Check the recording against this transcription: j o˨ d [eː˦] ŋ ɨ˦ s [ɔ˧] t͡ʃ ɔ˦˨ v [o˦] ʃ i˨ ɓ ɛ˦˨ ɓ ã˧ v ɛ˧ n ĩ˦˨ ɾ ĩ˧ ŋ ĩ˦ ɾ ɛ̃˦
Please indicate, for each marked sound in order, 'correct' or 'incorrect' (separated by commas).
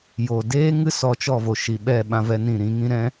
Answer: correct, correct, incorrect